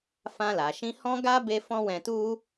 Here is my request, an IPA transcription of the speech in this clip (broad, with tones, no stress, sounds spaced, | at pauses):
f ã˧ l a˨ ʃ ĩ˧ h ɔ̃˦ ɡ a˦ b e˦ f ɔ̃˦ w ɛ̃˧ t u˦